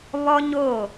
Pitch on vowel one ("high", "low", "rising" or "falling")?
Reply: high